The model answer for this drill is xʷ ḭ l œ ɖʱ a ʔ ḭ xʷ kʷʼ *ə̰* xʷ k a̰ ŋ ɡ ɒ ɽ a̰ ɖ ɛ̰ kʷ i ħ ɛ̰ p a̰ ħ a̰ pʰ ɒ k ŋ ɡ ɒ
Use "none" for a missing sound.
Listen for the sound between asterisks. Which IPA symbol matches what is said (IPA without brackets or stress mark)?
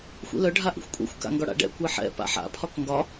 ɛ̰